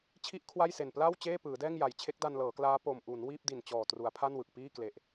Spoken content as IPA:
t͡ɕʰ i˥˩ ʔ kʰ w a˥˩ j s e˨˩ n p l a˥˩ w t͡ɕ eː˥˩ p ɯː˩˦ d ɛː˥˩ ŋ j a˨˩ j t͡ɕʰ e˦˥ k̚ d a˧ n l ɤː˩˦ k l aː˦˥ p o˧ m ʔ u˩˦ n w iː˥˩ p̚ d i˨˩ n t͡ɕ ɔː˨˩ t r u˩˦ a̯ pʰ a˥˩ n w ɯ˨˩ k̚ p iː˥˩ k l e˨˩ ʔ

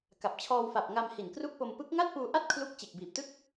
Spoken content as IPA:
k a˨˩ p̚ t͡ɕʰ ɔː˧ w f a˨˩ p̚ ŋ a˧ m h i˨˩ n k r u˥˩ k̚ p o˧ m p ɯ˦˥ k̚ ŋ a˥˩ t̚ p uː˧ ʔ a˥˩ t̚ kʰ l u˥˩ k̚ t͡ɕ e˨˩ k̚ b iː˨˩ p̚ t ɯ˥˩ k̚

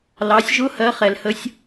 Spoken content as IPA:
l ɑ˩˧ sʲ ʒ ʊ˧˥ h ɜ˧˥ χ ɛ˩ l h ə˧˥ sʲ

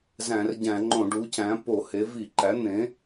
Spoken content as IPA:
z æ̃˧˩˧ r ɟ æ̃˧˩˧ ŋ͡ǃ õ˧˩˧ ɖ u˩˥ c æ̃˩˥ p o˧˩˧ h e˩˥ v i˧˩˧ ǃ æ˩˥ n̪ ẽ˩˥

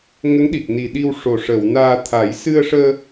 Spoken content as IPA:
ŋ ə˧˥ ŋ ɗ i˨˩ k̚ n i˨˩ ɗ i˧ w ʂ o˨˩ ʂ əː˨˩˨ w n aː˧ t̪ʰ a˨˩˦ j s ɨ˧ ə̯ ʂ əː˧

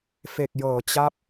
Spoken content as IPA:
f e˨˩ k̚ j ɤː˩˦ t͡ɕ a˦˥ p̚

